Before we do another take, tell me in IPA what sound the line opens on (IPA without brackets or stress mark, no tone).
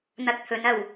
n̪